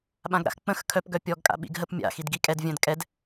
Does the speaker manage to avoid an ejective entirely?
no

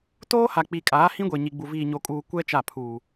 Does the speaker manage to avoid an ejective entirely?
no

